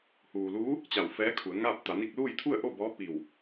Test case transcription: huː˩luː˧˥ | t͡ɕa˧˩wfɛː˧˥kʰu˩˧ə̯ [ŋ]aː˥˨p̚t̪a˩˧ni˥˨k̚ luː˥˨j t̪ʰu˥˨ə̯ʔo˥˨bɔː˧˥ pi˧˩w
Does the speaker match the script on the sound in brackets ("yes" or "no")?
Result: yes